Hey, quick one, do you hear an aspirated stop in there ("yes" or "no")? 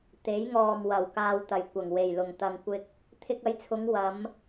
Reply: yes